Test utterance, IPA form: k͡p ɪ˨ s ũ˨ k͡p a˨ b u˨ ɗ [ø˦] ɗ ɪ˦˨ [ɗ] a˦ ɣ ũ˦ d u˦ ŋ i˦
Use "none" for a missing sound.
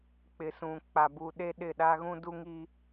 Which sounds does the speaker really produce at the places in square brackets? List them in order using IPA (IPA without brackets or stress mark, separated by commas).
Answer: e˦, ɗ